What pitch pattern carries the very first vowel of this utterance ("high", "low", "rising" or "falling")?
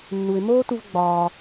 low